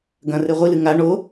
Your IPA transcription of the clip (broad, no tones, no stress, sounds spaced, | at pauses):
ɡ ɐ̃ r e ʁʷ i l ɨ ŋ a ɳ o